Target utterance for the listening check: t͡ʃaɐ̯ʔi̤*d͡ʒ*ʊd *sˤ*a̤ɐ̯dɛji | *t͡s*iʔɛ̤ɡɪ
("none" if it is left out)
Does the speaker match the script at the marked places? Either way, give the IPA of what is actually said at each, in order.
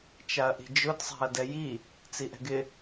d͡ʒ, sˤ, t͡s

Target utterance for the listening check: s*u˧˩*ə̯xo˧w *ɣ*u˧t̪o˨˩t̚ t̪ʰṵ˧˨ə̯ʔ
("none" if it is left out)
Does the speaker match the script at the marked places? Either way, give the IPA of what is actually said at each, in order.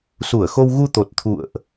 u˧˩, ɣ

